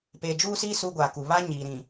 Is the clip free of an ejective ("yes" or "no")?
yes